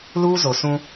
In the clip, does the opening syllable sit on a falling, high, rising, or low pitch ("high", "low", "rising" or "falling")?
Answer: high